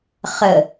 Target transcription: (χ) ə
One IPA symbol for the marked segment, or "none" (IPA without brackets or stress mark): χ